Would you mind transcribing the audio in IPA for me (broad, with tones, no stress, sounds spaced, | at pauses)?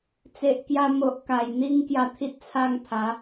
t͡s e˨ ʔ k j a˧ m o˨ ʔ k a˨˩ j n̪ i˦ ŋ k j a˧ t̪ʰ i˦ t̚ t͡sʰ a˧ ŋ pʰ a˨˦